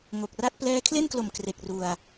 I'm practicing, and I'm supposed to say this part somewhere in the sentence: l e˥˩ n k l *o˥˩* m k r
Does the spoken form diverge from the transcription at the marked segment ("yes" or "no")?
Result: yes